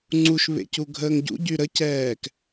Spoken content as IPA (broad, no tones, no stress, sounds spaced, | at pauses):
ŋ͡ǀ u ʃ β ḛ c u ɡʱ əː ŋ ɟ ṵ ɟ y ɾ ə c ɛː k